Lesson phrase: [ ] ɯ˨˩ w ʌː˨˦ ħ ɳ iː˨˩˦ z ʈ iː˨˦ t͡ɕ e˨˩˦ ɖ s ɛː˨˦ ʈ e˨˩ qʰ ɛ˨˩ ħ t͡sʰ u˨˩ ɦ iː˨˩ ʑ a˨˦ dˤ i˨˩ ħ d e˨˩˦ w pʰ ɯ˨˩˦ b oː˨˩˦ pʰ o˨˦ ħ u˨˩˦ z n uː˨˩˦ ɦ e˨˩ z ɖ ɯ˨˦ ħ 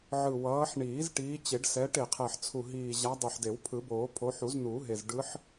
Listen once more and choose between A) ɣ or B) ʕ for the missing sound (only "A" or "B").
B